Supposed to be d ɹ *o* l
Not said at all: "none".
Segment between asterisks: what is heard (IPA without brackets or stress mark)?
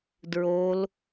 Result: o